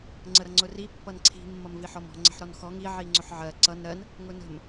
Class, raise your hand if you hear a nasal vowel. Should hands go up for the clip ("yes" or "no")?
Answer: no